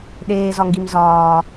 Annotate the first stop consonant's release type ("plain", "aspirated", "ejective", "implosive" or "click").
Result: implosive